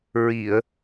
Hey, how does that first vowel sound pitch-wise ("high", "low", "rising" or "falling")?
low